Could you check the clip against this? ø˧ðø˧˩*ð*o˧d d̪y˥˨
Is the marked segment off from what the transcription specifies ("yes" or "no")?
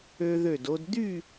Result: yes